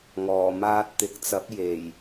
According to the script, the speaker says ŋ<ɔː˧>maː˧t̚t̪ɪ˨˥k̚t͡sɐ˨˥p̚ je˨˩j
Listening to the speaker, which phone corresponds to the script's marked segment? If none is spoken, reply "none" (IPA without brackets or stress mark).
ɔː˨˩